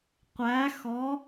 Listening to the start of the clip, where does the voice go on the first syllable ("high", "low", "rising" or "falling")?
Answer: rising